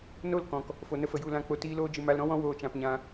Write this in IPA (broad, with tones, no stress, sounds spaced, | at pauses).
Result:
n o˦˨ l k ɔ̃˨ k | f o˨ n ə˧ f ə˨ j u˦˨ l ã˦˨ k͡p o˧ t iː˧ l oː˧ d͡ʒ ɨ˨ m a˧ l ɾ ɔ̃˦ w ɔ̃˦ w oː˧ t͡ʃ ã˧ p ɲ ã˧